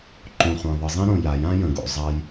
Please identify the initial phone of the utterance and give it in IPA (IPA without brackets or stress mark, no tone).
ǃ